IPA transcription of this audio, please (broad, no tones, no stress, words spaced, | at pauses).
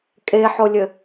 kʼeħolʲɘ